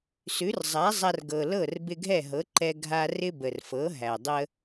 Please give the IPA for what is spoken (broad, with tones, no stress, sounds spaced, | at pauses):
s ʉ˩˥ r zˤ a˩˥ zˤ a˧ r ɡ ɤ˩ l ɤ˥˩ r b ɪ˧ ɡʱ ɛ˥˩ ɦ ɤ˩˥ ǃ ɛ˧ ɡʱ a˧ r ɪ˥ b ə˩ r f ɤ˩˥ ɦ æ˩ dˤ ə˧